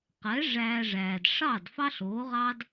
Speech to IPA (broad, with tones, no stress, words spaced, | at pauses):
qɛ˩˥ ʐæː˧ʐæː˩d ʂɑ˥˩d fɑ˥ɬ oː˩˥ʁɑ˥d